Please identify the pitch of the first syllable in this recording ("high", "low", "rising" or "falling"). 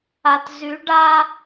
low